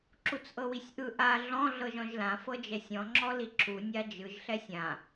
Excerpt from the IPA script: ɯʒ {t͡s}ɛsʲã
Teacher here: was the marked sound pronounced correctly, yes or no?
no